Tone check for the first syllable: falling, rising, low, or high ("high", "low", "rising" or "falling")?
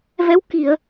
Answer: rising